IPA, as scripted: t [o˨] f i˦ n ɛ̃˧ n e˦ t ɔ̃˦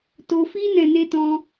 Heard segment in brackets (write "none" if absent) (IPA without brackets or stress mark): o˧